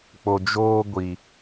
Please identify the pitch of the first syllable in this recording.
low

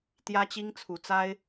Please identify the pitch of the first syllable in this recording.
high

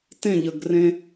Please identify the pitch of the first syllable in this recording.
falling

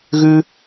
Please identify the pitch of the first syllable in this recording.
high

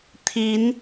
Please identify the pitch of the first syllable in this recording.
rising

